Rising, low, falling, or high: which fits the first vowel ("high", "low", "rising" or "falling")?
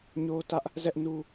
high